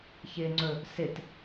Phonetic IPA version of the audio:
ç ɪ ŋ͡ǀ ɵ | s ɪ t

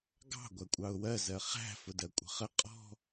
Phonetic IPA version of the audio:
ɡ ɑ̤ ɡʷ æ kʷʼ ɑ ʊ̯ w ɜ z ɜ χ æ̤ f ʊ d ɜ kʷʼ ə̤ χ ə qʼ ɔ̤

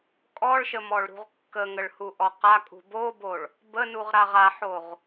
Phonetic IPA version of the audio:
kʼ ɔ ɭ ʃ ə m ɔ ɭ ɾ ṳ ʁ kː ə ŋ ə ɭ h u ʔ ɔ q a kʼ ṳ b o b o ɭ | b ə n u ʁ ɾ a ʁ a ħ o ʁ

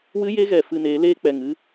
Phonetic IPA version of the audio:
w ɨ˦ j e˦ ɣ ɛ˨ f ɨ˧ n eː˨˦ l eː˦ k͡p ɛ˨ ŋ ɨ˦

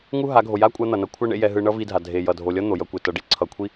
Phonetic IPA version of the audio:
ŋ u˦ ɦ a˨˦ ɡʱ o˨ j a˦ kʷʼ a˧ n̪ ʌ˨ n ʌ˦ kʷʰ a˦ ɳ ḛ˦ j ɛ˧ ɦ ɯ˧ ɳ ʌ˦ v i˧ dʱ a˨ dʱ e˨ j ʌ˨ dʱ o˨ lʲ ʌ˦ n̪ o˨ j ʌ˧ kʷ e˨ t ʌ˨ ɖ i˦ ǀʰ ʌ˨ kʷʰ i˦

